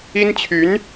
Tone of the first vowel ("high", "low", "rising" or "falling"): high